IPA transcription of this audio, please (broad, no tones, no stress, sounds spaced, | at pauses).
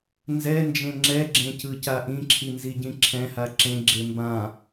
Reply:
n z ɛ n d͡ʒ ẽ ŋ͡ǁ ɛ ɡ͡ǁ ẽ c ɯ c a ʔ ĩ ǁʰ i n z i ɟ ĩ ǁʰ ɛ̃ h a ǁ ẽ ɡ͡ǁ e m b ã